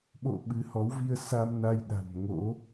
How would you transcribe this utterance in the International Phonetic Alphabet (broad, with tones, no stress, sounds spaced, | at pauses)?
ɓ o̰˧˨ ɓ ɨ˨˦ h ɔ˨˦ w v i˧ ə̯ s a˧ m n a˧ j ɗ a̤˨˩ n ŋ o̰˧˥